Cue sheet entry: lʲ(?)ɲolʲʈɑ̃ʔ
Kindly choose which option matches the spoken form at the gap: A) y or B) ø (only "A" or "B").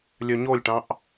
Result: B